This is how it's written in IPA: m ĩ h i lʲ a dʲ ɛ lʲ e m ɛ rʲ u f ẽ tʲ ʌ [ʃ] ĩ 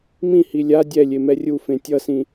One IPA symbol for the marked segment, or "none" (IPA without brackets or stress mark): s